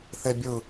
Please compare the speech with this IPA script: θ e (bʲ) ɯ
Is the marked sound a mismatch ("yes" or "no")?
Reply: no